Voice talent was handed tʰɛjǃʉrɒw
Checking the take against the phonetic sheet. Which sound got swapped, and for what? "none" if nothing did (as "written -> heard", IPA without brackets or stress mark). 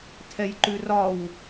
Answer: none